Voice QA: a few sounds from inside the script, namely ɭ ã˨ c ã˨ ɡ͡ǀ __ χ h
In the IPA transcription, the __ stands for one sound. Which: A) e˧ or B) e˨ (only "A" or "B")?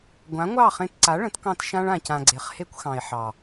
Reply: B